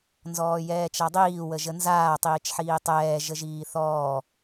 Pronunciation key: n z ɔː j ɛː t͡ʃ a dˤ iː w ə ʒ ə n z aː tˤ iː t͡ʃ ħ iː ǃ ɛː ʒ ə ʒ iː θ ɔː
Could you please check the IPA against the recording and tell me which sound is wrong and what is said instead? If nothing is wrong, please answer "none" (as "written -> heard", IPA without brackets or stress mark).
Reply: ǃ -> tˤ